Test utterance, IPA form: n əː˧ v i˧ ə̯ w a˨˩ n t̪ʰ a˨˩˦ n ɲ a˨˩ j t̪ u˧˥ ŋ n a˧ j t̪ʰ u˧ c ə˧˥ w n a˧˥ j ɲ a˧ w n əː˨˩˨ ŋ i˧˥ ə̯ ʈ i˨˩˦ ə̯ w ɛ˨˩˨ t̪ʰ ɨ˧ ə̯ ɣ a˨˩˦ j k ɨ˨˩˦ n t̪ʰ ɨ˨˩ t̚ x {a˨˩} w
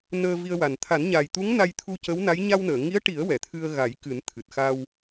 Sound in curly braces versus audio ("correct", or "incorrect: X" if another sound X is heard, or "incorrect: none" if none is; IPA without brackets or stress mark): incorrect: a˧